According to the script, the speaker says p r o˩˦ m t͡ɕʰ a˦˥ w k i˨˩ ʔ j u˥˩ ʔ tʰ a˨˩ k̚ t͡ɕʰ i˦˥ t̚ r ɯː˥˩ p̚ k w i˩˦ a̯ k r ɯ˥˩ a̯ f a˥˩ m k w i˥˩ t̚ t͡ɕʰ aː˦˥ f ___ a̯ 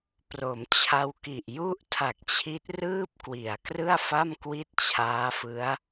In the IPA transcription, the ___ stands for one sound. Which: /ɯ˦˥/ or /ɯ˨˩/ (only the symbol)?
ɯ˦˥